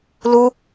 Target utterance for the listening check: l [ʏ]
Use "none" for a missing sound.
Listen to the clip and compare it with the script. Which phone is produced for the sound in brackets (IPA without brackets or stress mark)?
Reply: u